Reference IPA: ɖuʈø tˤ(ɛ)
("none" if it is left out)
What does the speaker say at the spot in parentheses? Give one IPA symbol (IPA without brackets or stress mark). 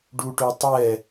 ɛ